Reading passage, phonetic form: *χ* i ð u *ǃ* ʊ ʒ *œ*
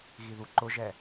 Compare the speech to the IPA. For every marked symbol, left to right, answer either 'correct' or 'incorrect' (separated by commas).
incorrect, correct, incorrect